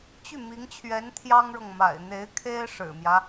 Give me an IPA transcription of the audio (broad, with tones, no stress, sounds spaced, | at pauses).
t͡ɕ y˥˩ m i˧˥ ŋ t͡ɕʰ ɥ ɛ˧˥ n t̪ʰ j ɑ˥ ŋ ɻ ɤ˨ ŋ m a̰˨˩ ɪ̯ n̪ e˧˥ ɪ̯ kʰ e˥ ɪ̯ ʂ ɻ̩˨˩ m j ä˦